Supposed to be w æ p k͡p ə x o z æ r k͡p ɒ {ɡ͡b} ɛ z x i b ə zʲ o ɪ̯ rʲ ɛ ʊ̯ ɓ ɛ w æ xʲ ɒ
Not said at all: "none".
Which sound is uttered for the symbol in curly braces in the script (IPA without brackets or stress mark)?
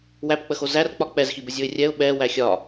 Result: k͡p